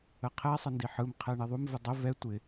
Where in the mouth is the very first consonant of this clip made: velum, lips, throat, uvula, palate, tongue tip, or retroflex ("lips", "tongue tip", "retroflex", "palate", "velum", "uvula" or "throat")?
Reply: uvula